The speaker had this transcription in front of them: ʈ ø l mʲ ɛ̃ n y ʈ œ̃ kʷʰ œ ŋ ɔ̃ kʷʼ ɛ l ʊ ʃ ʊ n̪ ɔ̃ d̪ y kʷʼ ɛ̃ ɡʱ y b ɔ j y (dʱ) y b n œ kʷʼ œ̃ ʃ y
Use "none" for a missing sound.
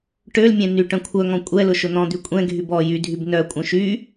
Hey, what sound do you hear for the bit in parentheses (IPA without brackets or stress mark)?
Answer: dʱ